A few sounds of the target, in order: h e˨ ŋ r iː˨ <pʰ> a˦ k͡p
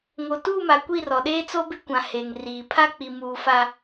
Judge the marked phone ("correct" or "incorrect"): correct